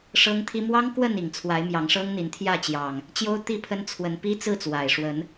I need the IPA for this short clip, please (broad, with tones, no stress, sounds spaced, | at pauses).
ʂ ɤ˦ ŋ t̪ʰ i˦ m w ɑ˦ ŋ k w ə˥˨ n i˨˩ ŋ t͡sʰ w a˨˦ ɪ̯ m j ɑ˨˦ ŋ ʂ ɤ˦ ŋ n̪ i˨˦ n t̪ʰ j ä˥˨ t͡ɕ j ɑ˨˩ ŋ | t͡ɕ j o˦ ʊ̯ t̪ i˥˨ pʰ ə˦ n t͡sʰ w ə˨˦ n p i˦ t͡s ɹ̩˥˨ t͡s w a˨˩ ɪ̯ ʂ w ə˨˦ n